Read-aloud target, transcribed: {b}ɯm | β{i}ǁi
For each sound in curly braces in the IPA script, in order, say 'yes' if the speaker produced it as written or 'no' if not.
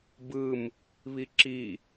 yes, yes

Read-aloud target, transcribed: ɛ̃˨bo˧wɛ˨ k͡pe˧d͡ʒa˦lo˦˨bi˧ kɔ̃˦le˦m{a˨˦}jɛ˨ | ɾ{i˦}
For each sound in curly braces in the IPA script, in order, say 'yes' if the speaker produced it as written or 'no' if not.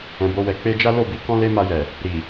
no, no

